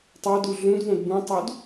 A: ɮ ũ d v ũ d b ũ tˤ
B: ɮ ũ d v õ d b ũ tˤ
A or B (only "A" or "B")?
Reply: B